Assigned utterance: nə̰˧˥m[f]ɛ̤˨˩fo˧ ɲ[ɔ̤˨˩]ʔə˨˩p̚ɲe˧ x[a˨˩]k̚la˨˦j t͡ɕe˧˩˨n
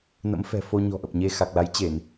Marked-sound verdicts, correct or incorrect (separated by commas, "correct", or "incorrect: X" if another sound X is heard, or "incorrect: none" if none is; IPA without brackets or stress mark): correct, correct, correct